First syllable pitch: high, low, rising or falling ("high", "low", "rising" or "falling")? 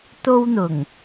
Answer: high